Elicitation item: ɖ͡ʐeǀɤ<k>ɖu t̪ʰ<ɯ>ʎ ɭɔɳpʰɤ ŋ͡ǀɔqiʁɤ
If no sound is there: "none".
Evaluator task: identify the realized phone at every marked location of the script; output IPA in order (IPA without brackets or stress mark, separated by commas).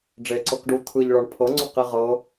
k, ɯ